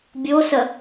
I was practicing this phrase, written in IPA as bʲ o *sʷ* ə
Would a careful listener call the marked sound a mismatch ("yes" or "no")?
yes